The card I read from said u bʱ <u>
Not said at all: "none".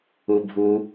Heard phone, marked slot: u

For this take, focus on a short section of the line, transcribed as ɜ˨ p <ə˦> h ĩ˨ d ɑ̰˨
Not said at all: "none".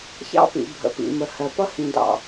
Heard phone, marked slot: ʌ˦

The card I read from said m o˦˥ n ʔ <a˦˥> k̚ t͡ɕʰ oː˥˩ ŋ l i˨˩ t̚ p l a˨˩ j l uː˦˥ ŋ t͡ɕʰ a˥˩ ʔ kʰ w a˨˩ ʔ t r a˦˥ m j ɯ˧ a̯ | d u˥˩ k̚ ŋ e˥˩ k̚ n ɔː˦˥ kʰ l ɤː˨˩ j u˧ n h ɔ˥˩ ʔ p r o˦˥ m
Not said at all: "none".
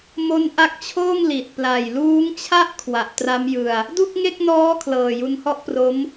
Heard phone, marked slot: a˦˥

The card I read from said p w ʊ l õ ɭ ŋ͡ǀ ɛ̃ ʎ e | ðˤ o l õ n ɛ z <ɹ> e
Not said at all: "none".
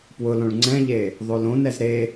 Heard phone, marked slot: ɾ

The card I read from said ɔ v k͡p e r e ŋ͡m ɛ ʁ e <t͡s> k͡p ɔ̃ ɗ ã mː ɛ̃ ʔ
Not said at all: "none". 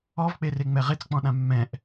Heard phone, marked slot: t͡s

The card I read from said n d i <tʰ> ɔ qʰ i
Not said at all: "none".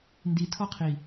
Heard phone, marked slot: tʰ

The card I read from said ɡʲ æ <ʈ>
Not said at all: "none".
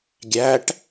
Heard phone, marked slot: ʈ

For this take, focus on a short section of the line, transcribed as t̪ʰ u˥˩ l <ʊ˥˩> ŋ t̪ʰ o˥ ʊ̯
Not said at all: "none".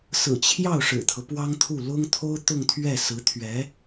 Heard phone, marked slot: ʊ˥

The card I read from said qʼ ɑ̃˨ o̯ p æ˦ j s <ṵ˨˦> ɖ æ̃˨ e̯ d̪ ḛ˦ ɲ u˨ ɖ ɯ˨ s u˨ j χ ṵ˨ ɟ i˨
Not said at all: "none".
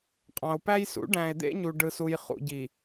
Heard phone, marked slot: ṵ˨˦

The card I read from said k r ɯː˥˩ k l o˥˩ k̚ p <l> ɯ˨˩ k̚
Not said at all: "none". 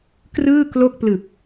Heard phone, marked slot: l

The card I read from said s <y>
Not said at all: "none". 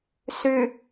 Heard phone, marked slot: y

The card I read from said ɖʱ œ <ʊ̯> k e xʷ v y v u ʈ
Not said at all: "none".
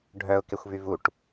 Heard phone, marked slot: ʊ̯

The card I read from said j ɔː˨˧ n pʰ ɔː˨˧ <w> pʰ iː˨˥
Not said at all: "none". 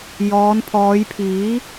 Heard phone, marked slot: j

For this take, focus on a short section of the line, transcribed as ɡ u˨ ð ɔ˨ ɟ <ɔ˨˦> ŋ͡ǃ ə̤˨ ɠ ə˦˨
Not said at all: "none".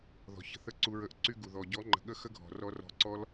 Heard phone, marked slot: ɔ˨˦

